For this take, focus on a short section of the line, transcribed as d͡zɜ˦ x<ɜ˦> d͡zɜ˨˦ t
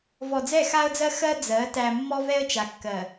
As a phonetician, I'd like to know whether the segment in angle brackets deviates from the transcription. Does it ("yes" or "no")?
no